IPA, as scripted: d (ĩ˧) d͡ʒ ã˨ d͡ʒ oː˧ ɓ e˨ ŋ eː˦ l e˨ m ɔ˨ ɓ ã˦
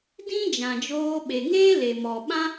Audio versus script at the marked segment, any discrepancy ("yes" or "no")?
yes